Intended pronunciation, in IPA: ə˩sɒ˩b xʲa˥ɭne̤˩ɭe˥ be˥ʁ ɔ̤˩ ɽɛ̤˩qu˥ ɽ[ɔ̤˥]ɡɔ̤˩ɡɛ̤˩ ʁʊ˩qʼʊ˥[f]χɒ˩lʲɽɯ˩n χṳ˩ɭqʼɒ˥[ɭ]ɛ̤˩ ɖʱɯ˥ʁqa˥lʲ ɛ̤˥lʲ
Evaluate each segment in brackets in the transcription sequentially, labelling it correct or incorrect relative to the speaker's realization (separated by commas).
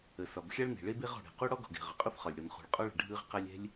incorrect, correct, correct